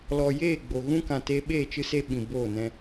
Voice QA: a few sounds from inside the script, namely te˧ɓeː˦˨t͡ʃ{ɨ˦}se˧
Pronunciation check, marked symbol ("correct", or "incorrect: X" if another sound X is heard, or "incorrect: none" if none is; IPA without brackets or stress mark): correct